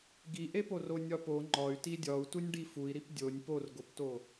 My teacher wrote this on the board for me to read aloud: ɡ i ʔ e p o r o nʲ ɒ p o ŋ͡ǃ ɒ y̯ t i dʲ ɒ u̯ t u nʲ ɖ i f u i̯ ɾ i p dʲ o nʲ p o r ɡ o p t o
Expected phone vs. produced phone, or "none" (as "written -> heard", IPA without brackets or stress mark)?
none